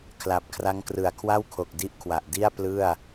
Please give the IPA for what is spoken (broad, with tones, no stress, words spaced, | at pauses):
kʰla˨˩p̚kʰra˦˥ŋkrɯ˨˩a̯ kʰwa˥˩wkʰo˨˩k̚ di˦˥ʔkʰwa˨˩ʔdi˥˩a̯ plɯ˥˩a̯